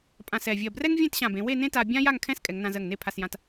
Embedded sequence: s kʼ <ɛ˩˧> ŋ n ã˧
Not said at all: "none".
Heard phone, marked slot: ɛ˩˧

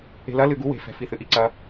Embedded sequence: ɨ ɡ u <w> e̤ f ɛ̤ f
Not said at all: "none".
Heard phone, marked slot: w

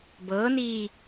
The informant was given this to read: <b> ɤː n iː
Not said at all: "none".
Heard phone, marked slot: b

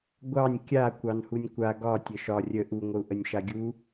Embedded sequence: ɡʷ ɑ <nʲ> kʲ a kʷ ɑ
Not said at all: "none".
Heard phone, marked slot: nʲ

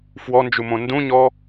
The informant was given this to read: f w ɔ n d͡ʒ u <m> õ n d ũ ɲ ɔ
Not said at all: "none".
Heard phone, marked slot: m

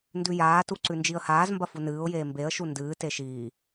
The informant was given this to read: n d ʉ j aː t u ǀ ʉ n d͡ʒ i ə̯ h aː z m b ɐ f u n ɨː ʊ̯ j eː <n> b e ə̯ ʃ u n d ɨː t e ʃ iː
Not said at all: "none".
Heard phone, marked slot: m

